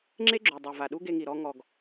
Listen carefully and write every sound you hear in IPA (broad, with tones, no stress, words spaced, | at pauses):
ŋ͡ǁe˦ɡ͡ǁo˨ dˤo˨va˨ɗu˦ ɡe˧ŋi˨ɾɔ˧ ŋɔ˨ɡ